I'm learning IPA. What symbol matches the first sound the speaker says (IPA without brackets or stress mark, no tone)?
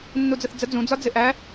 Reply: nː